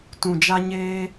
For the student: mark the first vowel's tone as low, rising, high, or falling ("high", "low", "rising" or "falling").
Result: low